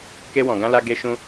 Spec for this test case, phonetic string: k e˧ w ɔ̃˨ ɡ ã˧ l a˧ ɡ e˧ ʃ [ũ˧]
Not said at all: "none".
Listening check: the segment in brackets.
ũ˧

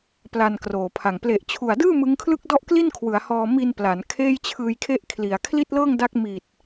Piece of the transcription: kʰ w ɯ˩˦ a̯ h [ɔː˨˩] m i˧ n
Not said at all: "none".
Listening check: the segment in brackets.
ɔː˧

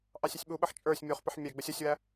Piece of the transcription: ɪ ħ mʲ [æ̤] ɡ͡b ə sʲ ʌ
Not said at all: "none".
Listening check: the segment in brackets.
æ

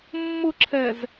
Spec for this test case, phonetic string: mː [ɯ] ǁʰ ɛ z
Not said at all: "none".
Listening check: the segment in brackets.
ʊ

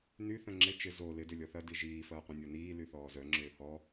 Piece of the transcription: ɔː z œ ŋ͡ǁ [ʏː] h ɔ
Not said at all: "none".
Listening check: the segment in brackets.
ʏː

